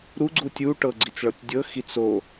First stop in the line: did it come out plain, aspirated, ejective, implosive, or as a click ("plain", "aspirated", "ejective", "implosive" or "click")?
click